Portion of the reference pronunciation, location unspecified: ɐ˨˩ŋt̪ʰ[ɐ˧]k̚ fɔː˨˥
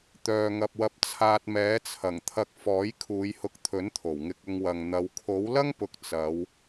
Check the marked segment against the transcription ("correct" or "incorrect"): correct